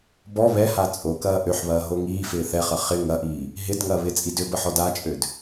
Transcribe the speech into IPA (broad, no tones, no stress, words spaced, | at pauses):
bɔ βɛha t͡sʼokɐː ʔøħβɐː ɦoŋiːfɪː θɛχɐ χɪ ŋɐʔiː | ɦɪd ŋɐːβɪt͡sʼi dʏbə ħɔdat͡ʃʼød